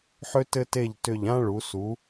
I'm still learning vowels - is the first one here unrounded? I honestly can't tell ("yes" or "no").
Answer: no